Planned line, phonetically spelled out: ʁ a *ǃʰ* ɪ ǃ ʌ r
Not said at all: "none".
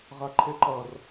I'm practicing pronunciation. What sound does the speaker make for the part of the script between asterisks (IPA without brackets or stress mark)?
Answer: ǃʰ